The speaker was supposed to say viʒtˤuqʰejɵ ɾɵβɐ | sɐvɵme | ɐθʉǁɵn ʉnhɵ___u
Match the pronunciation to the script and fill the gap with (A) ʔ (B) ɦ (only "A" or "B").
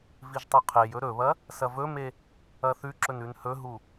B